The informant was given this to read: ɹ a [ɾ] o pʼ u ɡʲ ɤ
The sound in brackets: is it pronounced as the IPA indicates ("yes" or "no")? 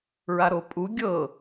yes